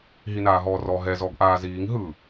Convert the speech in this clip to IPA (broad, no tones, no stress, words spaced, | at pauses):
ɦinaːɦɔːrɔ ɦɛ zɔɡʔaːziːŋ ɦɯ